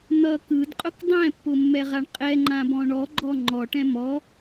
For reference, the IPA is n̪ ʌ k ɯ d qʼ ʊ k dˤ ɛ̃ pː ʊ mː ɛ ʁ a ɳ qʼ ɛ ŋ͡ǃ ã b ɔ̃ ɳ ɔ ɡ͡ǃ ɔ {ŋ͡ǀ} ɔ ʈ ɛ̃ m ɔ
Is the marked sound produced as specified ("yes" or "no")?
no